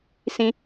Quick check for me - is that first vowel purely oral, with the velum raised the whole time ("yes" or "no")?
no